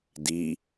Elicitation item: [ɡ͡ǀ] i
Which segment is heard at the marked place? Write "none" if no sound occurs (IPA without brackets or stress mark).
d